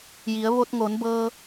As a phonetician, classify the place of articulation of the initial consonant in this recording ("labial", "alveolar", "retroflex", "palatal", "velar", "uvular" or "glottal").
palatal